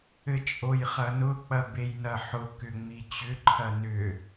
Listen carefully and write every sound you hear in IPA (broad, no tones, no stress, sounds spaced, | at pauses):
ɘ t͡ʃʼ o j χ ɐ n ʊ k͡p ɐ b e j n ɐ ħ ʊ k ʏ ŋ͡m i t͡ɕ ʏ ǃʰ ɐ n ʏ